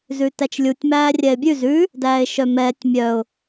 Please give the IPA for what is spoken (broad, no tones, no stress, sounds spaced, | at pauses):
z ʉ t æ t͡ʃ lʲ u tʲ m æː rʲ ɛ ɪ̯ bʲ ʉ z ʉ | d æː ɪ̯ ʃ œ m ɛː tʲ mʲ œ ʊ̯